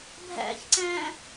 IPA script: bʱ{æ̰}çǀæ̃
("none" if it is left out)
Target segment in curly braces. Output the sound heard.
æ̰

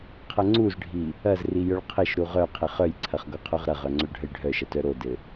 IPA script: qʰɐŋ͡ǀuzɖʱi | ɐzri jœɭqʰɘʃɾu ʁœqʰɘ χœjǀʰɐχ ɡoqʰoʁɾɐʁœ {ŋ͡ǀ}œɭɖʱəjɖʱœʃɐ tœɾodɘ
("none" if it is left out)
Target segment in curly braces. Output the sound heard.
ŋ͡ǀ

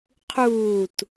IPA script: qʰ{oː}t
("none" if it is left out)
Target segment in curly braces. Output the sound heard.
uː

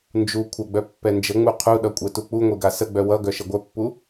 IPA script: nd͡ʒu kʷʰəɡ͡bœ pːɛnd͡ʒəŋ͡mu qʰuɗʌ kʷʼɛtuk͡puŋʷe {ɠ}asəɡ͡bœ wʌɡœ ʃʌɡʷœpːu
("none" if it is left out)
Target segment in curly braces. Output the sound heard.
ɡ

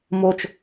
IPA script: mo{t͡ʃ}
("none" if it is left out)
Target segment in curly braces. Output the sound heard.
t͡ʃ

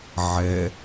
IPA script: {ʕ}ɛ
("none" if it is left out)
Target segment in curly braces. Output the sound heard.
ʕ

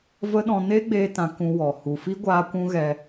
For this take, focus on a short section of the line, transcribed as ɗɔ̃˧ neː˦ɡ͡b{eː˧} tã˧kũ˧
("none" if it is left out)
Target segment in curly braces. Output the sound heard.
eː˧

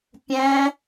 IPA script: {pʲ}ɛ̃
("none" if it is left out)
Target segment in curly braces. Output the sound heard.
pʲ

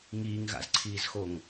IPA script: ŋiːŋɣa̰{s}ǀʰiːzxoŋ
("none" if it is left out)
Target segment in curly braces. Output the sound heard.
z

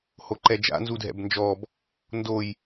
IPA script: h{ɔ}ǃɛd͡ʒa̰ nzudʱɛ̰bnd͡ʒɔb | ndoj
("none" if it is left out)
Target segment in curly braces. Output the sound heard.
o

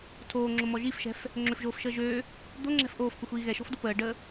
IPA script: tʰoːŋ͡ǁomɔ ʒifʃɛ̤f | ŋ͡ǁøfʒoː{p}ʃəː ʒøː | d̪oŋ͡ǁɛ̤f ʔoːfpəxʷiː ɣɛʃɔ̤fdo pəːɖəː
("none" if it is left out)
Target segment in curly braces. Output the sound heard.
f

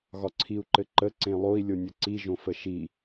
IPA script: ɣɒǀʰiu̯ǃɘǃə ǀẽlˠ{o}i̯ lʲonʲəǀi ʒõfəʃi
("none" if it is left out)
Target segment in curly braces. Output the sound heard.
o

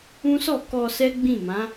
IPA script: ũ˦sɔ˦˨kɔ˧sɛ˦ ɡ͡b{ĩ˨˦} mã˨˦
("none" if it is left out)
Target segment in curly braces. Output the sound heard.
ĩ˦˨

